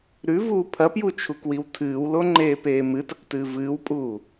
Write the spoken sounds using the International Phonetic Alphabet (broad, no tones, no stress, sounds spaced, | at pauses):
ɾ ʉ v uː pʰ ɐ p j u t͡ʃʰ u k w i w tʰ ɨː w l o ŋ͡ǃ eː p eː m ɨ t ɐ k t ɨː v ɨː w pʼ uː